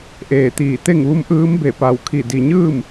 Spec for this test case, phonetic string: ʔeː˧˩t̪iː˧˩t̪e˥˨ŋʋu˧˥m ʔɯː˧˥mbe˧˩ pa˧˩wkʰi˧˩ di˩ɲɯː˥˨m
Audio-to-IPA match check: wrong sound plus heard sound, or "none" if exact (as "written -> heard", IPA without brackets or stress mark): none